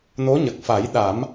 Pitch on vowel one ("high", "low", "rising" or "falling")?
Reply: rising